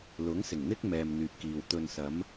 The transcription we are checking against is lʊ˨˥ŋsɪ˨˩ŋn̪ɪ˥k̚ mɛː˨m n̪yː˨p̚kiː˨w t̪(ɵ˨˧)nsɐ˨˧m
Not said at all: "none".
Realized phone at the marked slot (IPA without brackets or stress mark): ɵ˨